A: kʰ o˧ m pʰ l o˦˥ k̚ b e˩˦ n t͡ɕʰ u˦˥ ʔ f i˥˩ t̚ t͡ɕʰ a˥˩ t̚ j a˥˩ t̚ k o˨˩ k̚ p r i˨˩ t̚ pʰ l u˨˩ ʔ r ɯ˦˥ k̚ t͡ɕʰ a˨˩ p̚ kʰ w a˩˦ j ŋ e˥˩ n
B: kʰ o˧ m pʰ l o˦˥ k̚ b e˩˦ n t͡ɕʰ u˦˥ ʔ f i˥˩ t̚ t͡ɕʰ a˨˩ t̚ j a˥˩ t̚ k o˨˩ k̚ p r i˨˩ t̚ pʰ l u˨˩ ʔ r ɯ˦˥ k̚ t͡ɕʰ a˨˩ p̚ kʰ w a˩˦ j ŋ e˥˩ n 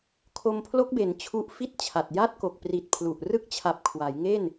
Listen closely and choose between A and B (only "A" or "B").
B